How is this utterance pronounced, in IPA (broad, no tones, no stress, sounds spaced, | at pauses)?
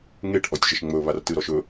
ŋ e ʈ ʔ ɔ tʲ ʒ ə ʃ ŋ͡m ɵ β a r t ɨ ɾ ɔ ʃ ɵ